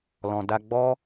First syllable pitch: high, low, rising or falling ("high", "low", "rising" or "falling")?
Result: low